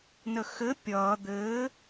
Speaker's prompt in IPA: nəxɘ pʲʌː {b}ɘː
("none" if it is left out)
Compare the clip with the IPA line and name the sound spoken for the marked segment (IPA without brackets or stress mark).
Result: d̪